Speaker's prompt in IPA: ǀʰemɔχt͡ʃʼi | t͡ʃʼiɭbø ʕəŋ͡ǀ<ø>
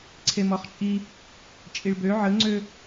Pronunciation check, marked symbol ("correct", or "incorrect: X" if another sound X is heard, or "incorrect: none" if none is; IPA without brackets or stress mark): correct